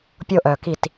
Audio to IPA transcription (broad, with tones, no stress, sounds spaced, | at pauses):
pʲ o˦ ʔ œ˨ k i˦˨ t